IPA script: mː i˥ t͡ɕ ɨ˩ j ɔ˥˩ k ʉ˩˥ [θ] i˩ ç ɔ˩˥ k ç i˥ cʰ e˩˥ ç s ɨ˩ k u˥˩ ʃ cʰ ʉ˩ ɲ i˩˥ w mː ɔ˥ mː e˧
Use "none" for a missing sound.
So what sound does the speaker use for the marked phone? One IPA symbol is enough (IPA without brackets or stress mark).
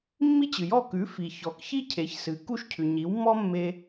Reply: f